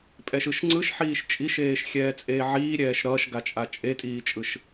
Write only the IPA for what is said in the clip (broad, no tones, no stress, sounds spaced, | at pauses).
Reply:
pʼ ɛ ʃ ɯ ʃ ŋ͡ǀ ɯ ʃ ħ iː ʃ t͡ʃʼ i ʃ eː ʃ xʲ ɛː t͡sʼ eː ʕ iː ɾʲ ɛː ʃ ɾ ʌː ʃ ɡ a t͡ʃʼ a t͡ʃʼ e tʼ iː t͡ʃʼ ɯ ʃ